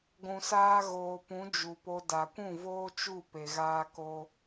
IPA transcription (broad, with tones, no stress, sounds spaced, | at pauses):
ɡʷ ũ˨ s aː˧ ɣ oː˨ p ũ˨˦ d͡ʒ u˨ p o˧ d a˨ kʷ ũ˦˨ v oː˦ t͡ʃ u˦˨ p e˨ ɣ aː˧ k o˧